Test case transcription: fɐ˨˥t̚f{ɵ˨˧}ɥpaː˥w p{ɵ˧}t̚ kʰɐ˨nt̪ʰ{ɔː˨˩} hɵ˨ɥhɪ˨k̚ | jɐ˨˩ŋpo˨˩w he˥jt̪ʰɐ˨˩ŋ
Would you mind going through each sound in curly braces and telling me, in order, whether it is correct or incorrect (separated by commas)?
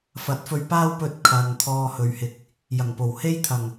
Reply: incorrect, correct, incorrect